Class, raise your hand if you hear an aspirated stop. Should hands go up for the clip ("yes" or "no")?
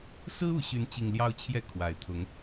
yes